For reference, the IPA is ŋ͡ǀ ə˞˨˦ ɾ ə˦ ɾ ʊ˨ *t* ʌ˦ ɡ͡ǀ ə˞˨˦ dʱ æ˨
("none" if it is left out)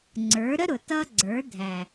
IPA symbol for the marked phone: t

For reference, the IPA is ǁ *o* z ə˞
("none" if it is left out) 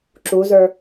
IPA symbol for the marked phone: u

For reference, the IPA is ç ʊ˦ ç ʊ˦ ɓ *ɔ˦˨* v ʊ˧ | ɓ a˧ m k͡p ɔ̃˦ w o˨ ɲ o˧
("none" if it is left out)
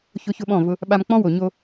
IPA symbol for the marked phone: ɔ̃˦˨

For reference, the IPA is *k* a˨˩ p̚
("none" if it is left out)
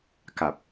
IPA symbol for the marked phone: k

